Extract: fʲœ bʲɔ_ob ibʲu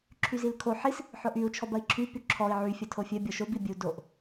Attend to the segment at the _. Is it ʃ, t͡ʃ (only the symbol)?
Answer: ʃ